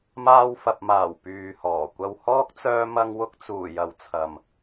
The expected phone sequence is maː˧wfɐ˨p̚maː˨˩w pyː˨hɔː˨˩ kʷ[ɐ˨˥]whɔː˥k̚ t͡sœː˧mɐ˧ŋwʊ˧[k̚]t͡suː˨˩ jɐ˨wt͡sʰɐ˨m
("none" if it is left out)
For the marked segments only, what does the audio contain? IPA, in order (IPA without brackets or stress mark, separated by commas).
ɐ˧, k̚